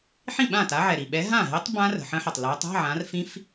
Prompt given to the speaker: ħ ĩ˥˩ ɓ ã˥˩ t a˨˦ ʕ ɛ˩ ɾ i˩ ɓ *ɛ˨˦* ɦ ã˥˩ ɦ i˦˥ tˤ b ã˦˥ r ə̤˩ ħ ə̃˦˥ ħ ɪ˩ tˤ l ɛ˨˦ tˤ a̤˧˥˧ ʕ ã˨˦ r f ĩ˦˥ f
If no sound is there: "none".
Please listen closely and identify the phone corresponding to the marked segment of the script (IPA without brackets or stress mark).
ɛ˨˦